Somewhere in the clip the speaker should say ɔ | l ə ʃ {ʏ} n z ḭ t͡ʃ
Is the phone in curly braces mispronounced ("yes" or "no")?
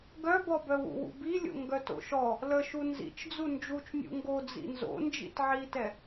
yes